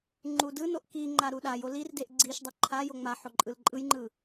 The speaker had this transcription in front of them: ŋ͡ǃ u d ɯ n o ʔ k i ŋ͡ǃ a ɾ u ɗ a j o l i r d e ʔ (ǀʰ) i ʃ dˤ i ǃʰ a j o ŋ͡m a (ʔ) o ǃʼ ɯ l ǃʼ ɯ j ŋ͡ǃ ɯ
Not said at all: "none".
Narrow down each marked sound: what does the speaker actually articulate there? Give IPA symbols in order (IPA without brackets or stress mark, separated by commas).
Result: ɡ͡ǀ, ħ